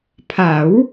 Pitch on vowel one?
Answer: rising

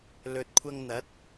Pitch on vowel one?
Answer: low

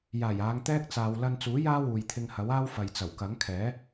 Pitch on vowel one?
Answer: low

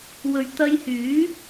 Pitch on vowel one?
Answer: low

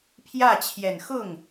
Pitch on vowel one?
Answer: falling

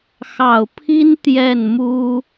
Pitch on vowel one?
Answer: low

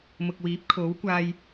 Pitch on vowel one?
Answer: low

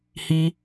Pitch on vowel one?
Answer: high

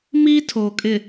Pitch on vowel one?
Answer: high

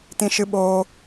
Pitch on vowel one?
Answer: high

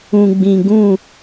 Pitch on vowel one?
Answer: low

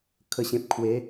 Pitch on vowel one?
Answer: low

